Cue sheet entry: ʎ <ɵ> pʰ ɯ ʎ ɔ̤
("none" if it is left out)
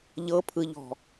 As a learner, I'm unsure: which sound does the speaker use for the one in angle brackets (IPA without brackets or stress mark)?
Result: ɤ